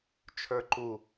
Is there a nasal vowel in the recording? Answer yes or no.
no